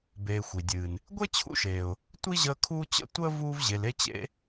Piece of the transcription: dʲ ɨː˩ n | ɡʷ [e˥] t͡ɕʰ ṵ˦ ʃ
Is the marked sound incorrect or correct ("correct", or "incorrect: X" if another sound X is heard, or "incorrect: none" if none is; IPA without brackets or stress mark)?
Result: correct